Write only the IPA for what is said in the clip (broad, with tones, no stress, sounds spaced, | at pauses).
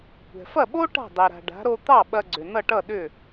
kʷ ɛ̤˩ f ɐ˥˩ ɓ o˥ ʈ a̤˥˩ dˤ e˩ ɾ a̤˩ ɖ a̤˩˥ ɾ o˧ t̪ ɑ˥˩ ɓ ɐ˧ ɡ͡ǀ ʏ˩ n ʌ˥˩ ʈ ʌ˥˩ ɗ ʏ˥˩